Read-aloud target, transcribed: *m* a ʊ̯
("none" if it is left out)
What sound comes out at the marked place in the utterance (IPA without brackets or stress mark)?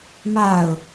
m